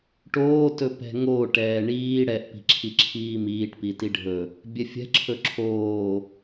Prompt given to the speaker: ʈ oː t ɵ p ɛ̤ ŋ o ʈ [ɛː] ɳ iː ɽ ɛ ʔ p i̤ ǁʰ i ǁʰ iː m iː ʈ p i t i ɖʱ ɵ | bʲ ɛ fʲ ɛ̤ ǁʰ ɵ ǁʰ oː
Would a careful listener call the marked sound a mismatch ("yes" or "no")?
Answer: no